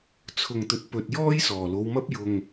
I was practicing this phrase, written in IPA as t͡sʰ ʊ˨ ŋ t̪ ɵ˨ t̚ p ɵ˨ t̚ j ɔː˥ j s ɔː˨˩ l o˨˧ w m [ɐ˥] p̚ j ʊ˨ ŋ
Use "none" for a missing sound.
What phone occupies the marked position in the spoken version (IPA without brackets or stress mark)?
ɐ˥